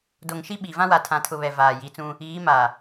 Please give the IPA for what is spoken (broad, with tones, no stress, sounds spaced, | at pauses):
d o˨ ŋ ʃ i˦ ɓ i˨ v ã˦ w a˨ tʰ ã˨ tʰ ʊ˨ β ɛ˨ v aː˨ j i˨˦ t͡s ũ˦ | iː˨˦ m a˨